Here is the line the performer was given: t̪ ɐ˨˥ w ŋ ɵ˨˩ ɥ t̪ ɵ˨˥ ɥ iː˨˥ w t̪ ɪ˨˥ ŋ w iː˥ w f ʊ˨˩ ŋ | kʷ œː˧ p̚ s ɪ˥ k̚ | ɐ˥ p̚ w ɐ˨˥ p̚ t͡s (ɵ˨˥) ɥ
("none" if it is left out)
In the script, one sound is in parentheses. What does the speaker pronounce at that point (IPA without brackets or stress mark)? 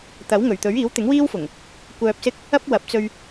ɵ˧